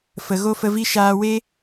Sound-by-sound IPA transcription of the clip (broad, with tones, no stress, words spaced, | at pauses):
fə˨ɣo˦fə˧vi˦ ʃaː˧we˦